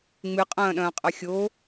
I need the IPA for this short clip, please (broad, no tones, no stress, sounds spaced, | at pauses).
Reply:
ŋ͡m ɨ qʼ ɐ̃ː ɗ ɐ̃ː qʼ ɐ xʲ o